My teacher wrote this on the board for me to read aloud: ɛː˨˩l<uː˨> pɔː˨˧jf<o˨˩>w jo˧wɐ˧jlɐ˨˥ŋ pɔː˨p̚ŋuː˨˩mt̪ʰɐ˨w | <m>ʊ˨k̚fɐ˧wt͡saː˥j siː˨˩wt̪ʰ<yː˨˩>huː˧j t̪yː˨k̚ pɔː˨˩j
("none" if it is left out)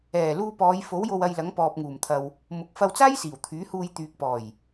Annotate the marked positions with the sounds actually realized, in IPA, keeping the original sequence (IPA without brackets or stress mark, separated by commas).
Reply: uː˧, o˨˥, m, yː˨˥